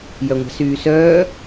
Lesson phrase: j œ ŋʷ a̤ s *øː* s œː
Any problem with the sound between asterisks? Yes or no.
yes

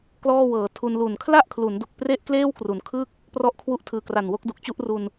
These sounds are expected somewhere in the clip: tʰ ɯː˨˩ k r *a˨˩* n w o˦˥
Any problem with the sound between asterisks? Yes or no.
no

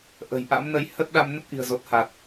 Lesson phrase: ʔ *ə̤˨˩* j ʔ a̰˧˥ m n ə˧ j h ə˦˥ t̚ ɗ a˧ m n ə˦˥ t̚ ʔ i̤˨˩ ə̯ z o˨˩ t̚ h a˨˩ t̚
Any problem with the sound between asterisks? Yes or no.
no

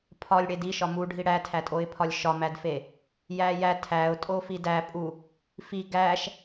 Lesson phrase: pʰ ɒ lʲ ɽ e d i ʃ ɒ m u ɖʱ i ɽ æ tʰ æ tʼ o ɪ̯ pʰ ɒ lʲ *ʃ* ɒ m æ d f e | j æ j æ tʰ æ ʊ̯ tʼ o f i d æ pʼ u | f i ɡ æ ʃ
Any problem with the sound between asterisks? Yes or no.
no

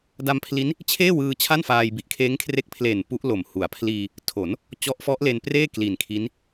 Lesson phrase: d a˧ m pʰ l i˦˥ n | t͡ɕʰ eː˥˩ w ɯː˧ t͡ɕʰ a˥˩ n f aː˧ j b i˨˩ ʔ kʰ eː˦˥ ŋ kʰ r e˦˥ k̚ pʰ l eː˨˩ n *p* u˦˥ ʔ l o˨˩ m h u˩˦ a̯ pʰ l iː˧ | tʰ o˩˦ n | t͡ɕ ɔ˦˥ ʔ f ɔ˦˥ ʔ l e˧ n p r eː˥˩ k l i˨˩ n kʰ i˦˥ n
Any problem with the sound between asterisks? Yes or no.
no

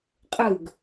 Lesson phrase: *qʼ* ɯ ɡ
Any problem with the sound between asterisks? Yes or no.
no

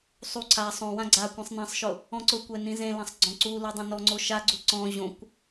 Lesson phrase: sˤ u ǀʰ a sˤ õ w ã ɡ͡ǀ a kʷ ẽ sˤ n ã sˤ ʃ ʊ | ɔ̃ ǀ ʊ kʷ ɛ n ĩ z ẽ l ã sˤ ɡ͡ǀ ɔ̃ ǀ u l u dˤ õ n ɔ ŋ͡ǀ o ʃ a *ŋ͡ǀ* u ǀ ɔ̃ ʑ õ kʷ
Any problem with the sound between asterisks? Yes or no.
yes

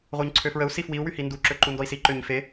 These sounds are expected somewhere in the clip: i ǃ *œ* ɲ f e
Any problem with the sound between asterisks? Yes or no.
yes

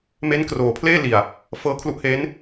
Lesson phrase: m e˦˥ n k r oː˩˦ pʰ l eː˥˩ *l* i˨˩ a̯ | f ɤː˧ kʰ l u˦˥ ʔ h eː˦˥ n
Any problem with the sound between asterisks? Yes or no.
no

